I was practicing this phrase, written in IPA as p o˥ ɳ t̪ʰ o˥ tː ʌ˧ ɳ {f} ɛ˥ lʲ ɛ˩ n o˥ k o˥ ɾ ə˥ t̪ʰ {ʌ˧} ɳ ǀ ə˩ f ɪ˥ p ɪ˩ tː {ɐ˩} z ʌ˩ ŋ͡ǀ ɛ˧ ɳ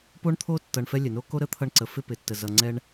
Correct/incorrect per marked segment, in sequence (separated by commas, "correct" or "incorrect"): correct, correct, incorrect